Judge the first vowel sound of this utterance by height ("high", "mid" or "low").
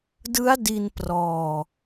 high